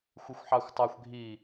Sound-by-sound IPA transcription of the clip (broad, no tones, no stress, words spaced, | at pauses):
xʷɪxʷħɑxʷtˤɑxʷ ɡʱi